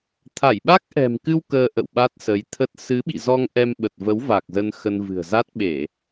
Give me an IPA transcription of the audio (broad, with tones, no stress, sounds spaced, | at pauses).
t̪ʰ a˧˩ j ɓ a˦˥ k̚ ʔ ɛ̤˨˩ m k ɨ˧ w k əː˧ ʔ ə̰˧˨ w ɓ a˦˥ t̚ s ə˨˦ j t̪ʰ ə˦˥ t̚ s ɨ˨˦ ɓ ḭ˧˨ z ɔ˧ ŋ ʔ ɛ˧ m ɓ ə˨˩ t̚ v ə˨˦ w v a˨˩ k̚ z ə˧ n x ə˧ n v ɨ̤˨˩ ə̯ z a˦˥ t̚ ɓ e˧˩˨